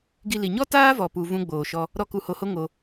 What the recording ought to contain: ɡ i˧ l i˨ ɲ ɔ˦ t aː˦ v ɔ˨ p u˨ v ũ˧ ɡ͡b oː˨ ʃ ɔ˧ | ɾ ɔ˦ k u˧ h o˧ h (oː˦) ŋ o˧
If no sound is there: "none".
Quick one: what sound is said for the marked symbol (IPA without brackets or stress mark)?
o˦